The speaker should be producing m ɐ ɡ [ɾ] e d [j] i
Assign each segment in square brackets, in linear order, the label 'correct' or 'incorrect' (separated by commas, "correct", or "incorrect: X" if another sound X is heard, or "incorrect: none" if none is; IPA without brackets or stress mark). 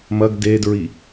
incorrect: d, incorrect: ɹ